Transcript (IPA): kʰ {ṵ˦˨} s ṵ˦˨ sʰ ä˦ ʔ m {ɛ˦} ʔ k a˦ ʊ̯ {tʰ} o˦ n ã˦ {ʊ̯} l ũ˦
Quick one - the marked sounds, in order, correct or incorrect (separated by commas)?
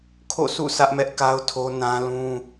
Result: incorrect, correct, correct, incorrect